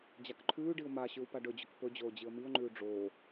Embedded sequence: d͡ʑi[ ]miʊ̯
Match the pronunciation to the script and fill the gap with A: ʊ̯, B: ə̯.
B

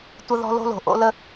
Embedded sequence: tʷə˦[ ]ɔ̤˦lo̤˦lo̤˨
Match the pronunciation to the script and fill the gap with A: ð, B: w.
A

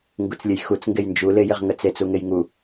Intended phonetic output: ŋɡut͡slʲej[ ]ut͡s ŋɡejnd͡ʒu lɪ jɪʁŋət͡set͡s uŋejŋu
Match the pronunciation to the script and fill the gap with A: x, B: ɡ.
A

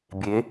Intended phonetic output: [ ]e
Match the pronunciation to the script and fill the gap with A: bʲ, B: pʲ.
A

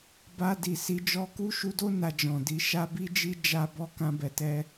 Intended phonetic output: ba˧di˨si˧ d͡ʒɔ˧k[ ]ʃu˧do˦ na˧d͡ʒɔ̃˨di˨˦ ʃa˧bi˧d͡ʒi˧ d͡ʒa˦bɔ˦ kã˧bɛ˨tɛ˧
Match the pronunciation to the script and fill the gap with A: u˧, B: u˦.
B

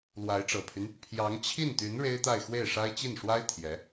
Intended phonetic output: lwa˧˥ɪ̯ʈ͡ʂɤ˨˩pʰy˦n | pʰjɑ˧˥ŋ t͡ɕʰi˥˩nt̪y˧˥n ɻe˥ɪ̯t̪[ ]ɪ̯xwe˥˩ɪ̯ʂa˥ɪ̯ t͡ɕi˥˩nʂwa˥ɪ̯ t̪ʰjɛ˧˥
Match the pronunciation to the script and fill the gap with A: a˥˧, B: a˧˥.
A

